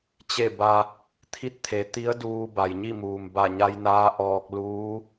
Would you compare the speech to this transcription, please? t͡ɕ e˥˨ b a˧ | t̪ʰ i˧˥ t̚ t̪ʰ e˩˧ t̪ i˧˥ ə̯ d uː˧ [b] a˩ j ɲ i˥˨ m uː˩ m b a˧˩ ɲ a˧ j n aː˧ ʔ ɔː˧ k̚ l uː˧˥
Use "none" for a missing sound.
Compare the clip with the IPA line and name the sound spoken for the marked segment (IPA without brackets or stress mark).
b